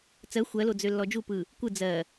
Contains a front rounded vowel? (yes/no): yes